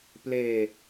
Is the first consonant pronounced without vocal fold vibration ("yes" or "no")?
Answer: yes